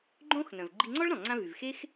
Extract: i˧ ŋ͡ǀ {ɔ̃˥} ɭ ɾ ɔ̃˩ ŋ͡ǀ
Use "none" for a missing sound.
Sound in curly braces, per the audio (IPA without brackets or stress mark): ɔ˥